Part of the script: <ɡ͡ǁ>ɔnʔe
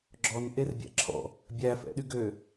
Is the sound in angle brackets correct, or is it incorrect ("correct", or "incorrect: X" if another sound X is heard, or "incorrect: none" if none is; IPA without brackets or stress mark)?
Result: correct